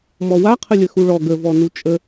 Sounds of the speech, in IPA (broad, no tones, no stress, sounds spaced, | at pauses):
m ɔ w a qʰ ə lʲ ə x u ɭ ɔ ɡ ə v ɔ n u t͡ʃʼ ə